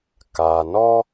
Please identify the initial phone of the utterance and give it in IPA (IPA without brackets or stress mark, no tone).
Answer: k